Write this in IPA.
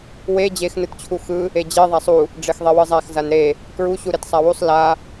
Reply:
w e d͡ʑ e x n ɯ t t͡ɕʰ u x ɯ | e d͡ʑ e ðˤ a sˤ u | ɖ͡ʐ e x ðˤ e w ɯ zˤ a x z a n ɾ e | k ɹ u ɕ u ɾ e t sˤ a w u sˤ l a

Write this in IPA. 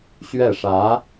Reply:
ɕ ɥ ɛ˥˩ ʂ ä˧˥

